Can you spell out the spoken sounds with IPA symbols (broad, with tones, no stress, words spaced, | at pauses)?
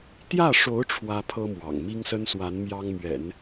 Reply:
t̪jä˥˩ʂo˧˥ʊ̯ ʈ͡ʂʰwä˥pʰɤ˥mwɑ̰˨˩ŋ mi˥ŋsə˥nswa˧˥n mjɑ˥ŋmɥɛ̰˨˩˦n